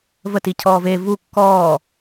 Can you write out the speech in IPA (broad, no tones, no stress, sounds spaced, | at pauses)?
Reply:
v ə t i cʰ ɔː v e v u kː ɔː